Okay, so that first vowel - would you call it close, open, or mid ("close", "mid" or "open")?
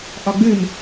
open